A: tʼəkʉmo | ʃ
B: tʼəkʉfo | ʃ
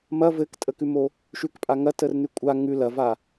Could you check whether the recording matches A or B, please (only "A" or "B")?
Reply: A